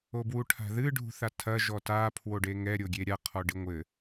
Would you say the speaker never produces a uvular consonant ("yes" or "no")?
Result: no